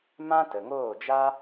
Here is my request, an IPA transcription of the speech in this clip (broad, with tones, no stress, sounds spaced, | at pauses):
m ã˦ t ə˨ ŋ oː˦˨ d͡ʒ a˦